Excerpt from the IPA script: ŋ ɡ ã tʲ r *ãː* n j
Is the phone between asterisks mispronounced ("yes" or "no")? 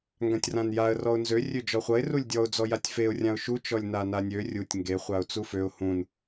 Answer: yes